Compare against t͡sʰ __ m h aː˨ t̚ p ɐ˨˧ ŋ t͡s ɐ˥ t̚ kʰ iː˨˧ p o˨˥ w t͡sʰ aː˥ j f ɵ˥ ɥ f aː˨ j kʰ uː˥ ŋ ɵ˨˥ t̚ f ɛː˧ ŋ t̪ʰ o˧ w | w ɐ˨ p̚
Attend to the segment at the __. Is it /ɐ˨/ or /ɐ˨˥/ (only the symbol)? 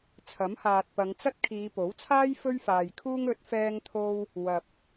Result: ɐ˨˥